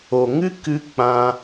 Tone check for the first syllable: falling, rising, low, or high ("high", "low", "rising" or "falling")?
low